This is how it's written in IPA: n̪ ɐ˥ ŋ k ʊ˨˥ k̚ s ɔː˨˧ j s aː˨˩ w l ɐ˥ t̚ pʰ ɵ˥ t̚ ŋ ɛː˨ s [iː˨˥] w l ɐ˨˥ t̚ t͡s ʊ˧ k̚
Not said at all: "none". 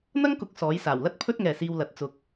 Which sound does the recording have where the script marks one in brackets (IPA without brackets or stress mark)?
iː˧